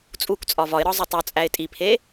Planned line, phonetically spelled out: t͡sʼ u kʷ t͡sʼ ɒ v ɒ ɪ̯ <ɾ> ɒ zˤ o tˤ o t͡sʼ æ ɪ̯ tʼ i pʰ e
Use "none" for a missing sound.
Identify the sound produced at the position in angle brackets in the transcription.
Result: ɾ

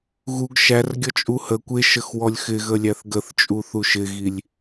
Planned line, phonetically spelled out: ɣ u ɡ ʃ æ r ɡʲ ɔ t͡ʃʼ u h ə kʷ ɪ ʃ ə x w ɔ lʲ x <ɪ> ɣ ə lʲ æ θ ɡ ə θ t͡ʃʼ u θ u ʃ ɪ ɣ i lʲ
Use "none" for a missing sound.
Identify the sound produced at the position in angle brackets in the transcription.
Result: ɪ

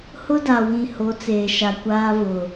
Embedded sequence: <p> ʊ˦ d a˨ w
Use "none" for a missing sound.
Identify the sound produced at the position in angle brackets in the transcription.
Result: h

